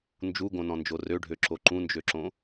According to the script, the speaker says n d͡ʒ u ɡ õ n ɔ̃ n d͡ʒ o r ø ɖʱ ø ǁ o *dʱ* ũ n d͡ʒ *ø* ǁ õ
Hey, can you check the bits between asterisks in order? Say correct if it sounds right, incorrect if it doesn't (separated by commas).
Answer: incorrect, correct